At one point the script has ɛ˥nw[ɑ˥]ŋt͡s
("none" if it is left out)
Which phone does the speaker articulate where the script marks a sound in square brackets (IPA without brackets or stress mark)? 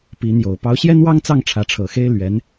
ɑ˥